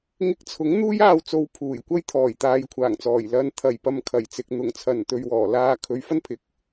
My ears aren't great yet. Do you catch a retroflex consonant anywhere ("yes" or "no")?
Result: no